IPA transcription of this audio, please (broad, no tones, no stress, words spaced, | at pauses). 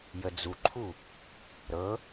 jəd͡zuǃʰu | ɾɤ